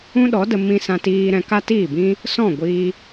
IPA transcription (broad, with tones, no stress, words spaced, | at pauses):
ũ˦ɗɔ˨˦də˧ mĩ˧sã˧tiː˧ ɾɛ̃˧ka˦tiː˦˨bĩ˦ | sɔ̃˦˨ ɡʷiː˧